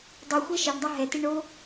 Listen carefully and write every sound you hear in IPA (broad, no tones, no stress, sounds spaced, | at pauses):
dˤ ɨ xʷ e ʃ e ɳ dˤ a ɦ ɛ t i ɳ o